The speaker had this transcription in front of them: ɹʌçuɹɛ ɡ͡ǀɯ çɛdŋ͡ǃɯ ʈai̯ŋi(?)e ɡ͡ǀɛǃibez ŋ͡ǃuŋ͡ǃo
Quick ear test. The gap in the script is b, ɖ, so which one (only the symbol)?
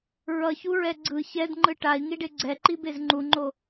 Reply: ɖ